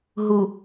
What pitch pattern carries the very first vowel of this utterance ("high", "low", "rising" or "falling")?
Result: low